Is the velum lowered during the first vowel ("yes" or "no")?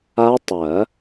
no